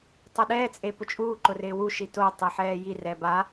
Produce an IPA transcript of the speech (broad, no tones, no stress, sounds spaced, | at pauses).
tˤ o ɗ ɛː t͡sʼ e p ʊ t͡ʃʼ uː ǃ ʊ r ɪː w u ʃ i t o tˤ i ħ ɛː j i r ɛ b a